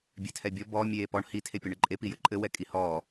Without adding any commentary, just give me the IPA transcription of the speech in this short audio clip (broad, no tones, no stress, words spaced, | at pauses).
bʲɛtʰɛbʲɔ bɔ mʲeːpɔɳ hi tʰepʲɔɳɘǃʼe pijɘǃʼɘ wɛkʼihɔː